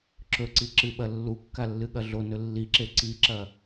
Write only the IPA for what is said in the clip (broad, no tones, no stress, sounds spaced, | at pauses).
ǁ ɵ ǀ i ǁ ɨ ɓ ɐ lː u kː a lː ɨ ɠ ɐ ɮ o n ɵ lː i ǁ e ǀ i ǁ ɐ